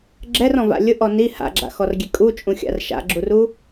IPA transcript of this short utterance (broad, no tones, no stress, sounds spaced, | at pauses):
ɡ͡ǁ ɛ r ɔ̃ v a̰ lʲ ʊ ʔ ɔ n i h a̰ ɡ͡ǁ a̰ x ɔ r ɡʲ e kʼ u t͡ʃʼ ũ xʲ a̰ r ʃ a̰ ɡ͡ǁ u r u